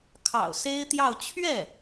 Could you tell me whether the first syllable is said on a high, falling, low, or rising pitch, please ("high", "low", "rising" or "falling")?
low